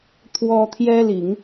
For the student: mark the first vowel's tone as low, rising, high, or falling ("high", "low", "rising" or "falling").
high